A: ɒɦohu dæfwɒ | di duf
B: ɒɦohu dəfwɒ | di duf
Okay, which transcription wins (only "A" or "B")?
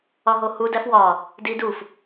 A